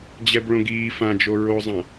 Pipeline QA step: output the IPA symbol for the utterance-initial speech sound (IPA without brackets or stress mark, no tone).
d͡ʑ